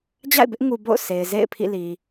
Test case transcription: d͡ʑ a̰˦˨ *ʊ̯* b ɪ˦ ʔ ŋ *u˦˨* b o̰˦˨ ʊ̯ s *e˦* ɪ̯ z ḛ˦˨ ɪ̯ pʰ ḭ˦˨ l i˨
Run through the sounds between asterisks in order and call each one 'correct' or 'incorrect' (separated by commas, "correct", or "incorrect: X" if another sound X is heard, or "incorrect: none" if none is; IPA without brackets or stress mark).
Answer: incorrect: ɪ̯, incorrect: u˨, incorrect: e˨